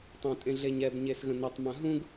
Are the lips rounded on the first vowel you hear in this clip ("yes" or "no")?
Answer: no